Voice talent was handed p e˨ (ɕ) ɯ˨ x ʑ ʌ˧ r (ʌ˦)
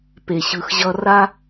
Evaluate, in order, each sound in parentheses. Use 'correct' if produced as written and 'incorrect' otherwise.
correct, incorrect: a˦

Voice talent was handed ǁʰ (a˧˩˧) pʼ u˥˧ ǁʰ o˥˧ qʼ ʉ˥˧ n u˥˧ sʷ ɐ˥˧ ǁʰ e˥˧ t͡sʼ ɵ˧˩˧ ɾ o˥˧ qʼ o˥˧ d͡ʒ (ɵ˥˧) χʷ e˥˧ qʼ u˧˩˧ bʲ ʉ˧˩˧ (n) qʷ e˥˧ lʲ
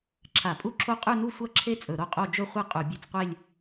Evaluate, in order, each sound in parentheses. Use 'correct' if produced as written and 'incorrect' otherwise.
correct, correct, incorrect: t͡s

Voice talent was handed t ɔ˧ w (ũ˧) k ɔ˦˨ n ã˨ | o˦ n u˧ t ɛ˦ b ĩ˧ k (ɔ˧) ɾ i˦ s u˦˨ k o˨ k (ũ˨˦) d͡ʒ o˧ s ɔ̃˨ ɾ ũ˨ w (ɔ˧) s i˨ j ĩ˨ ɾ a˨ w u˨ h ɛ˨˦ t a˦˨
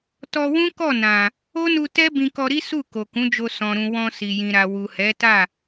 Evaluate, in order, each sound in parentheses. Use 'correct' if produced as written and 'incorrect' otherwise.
incorrect: ũ˦, correct, correct, incorrect: ɔ̃˧

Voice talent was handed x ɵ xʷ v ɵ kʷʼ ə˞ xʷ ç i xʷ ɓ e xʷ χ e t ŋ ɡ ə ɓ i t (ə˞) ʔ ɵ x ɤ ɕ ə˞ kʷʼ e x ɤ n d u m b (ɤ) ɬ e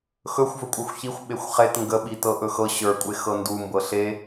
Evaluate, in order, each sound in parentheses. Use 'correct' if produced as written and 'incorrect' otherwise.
incorrect: ɤ, correct

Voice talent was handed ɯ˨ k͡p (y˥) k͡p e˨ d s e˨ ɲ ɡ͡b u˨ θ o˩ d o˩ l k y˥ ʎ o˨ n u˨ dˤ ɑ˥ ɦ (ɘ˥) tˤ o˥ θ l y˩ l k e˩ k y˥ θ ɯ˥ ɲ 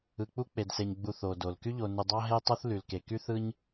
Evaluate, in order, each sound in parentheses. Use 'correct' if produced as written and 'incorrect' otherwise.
incorrect: u˥, incorrect: e˥

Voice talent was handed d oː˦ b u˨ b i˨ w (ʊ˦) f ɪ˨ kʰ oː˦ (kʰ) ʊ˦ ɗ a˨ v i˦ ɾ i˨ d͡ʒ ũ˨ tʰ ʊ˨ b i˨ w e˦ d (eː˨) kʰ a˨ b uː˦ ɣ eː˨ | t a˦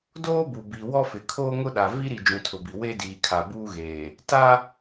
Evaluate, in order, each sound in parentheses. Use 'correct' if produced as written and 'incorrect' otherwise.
incorrect: ɔ˦, incorrect: ŋ, incorrect: iː˨

